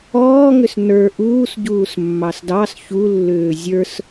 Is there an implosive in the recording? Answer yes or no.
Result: no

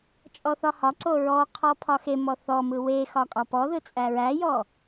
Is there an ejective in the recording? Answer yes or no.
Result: yes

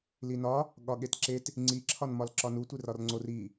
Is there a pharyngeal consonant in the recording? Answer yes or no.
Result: no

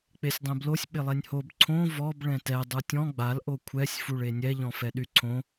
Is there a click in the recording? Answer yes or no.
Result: yes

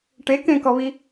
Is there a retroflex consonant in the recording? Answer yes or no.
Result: yes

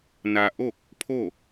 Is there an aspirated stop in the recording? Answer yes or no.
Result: yes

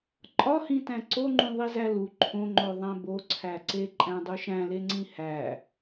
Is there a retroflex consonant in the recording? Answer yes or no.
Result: no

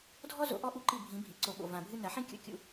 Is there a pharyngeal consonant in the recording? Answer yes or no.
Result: yes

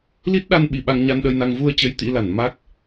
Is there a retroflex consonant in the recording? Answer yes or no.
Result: no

